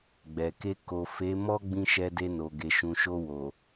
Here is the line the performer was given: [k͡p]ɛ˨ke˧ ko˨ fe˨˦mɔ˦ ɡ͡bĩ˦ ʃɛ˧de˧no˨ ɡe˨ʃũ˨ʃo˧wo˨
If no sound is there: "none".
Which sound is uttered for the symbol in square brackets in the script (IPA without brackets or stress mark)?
ɡ͡b